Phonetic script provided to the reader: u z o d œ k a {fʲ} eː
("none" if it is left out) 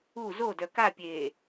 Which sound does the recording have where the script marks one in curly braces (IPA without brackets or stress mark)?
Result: pʲ